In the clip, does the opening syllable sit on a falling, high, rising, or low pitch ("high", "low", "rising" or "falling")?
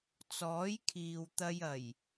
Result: rising